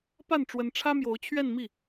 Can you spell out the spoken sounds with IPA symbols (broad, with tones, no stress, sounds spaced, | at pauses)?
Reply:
p a˥˩ n ʈ͡ʂ w ə˧˥ n ʈ͡ʂʰ ä˥ m j o˧˥ ʊ̯ t͡ɕʰ ɥ ɛ˥˧ n m i˥˩